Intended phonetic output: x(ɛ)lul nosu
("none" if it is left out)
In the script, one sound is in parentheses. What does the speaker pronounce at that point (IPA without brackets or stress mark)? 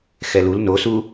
ɛ